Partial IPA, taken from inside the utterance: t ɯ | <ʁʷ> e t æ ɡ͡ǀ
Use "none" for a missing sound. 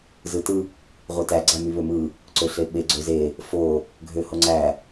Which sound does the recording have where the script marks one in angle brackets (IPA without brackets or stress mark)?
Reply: ʁʷ